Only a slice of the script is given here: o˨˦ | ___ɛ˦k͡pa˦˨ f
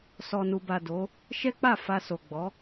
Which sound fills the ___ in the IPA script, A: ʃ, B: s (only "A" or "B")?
A